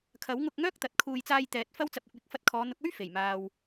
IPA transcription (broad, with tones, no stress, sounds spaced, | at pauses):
kʰ ɐ˨˥ w ŋ ʊ˧ k̚ ŋ œː˥ k̚ t̪ ɐ˨˥ t̚ kʰ uː˧ j t͡s aː˧ j t̪ ɛː˨ t̚ f ɐ˧ w t͡s ɐ˨ p̚ ɪ˨ k̚ w ɪ˨ k̚ f ɐ˧ t̚ kʰ ɔː˨˧ n̪ ʊ˨˥ k̚ ɵ˥ ɥ f e˨˩ j m aː˨ w